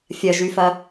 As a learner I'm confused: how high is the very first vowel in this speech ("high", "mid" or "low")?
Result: low